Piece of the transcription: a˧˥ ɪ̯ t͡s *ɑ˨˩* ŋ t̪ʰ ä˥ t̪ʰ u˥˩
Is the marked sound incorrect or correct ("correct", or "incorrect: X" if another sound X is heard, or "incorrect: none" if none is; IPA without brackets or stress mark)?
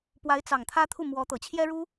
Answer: correct